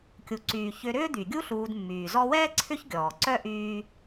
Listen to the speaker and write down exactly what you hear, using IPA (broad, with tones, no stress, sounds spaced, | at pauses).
kʲ u˩ ǀ yː˩ ç ʏ˨ ɾ ʏː˦ d̪ y˩ ɡʲ u˦ ɬ uː˨ d mː yː˩ z ɔ˦ w ɛː˥ ǀʰ ʏ˦ ç ɡʲ ɔː˩ ǀ œ˥ ʔ yː˦